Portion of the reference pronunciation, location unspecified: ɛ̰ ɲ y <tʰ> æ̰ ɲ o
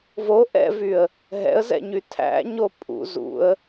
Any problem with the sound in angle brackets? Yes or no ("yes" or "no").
no